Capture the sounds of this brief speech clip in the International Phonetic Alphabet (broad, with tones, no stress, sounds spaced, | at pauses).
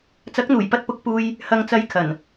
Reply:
t͡s ɐ˨˥ k̚ n̪ uː˨˩ j p ɐ˧ t̚ p ʊ˨˥ k̚ p uː˧ j | h ɐ˨ ŋ t͡s ɐ˨˧ j kʰ ɐ˨˩ n